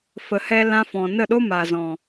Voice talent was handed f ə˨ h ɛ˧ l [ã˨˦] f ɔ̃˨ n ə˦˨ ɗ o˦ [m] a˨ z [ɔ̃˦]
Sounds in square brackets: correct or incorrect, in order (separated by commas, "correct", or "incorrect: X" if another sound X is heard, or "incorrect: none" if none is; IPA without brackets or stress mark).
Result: incorrect: ã˧, correct, incorrect: ɔ̃˨